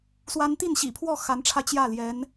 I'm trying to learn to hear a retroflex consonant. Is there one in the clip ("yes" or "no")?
yes